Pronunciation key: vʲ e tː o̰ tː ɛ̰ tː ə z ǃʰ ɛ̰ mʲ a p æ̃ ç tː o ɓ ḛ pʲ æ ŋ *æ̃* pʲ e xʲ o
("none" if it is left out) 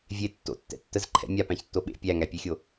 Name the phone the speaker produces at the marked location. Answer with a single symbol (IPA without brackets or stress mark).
æ